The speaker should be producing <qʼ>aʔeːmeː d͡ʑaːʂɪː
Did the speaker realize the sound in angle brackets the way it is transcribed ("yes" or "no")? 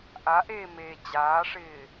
no